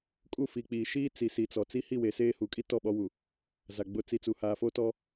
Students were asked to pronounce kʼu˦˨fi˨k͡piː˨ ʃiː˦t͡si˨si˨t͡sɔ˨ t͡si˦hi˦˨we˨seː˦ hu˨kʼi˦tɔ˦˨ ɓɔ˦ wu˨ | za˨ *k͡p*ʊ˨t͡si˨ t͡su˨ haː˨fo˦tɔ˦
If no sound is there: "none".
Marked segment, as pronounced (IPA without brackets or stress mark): ɡ͡b